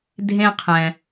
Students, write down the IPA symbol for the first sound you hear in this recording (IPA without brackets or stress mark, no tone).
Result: dʱ